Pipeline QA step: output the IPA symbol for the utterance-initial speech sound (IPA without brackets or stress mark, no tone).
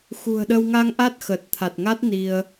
x